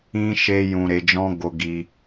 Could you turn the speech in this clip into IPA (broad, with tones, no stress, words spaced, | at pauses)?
ĩ˦ ʃe˦jũ˧ɾe˧d͡ʒɔ̃˦ ɡo˦ɡi˦